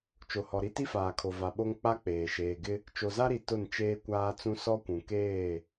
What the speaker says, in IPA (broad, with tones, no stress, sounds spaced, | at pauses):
t͡ʃ o˨ h ɔ˨ ɾ i˦ t i˦ f aː˨ kʰ o˨ v a˨ ɓ o˦ ŋ k͡p a˦ k͡p eː˨ ʃ eː˨ ɡ ɪ˦ | t͡ʃ o˨ z a˦ ɾ i˨ t ʊ˦˨ n t͡ʃ eː˦ kʷ aː˦ t͡s ũ˦ s ɔ˦ kʷ ũ˨ k eː˦˨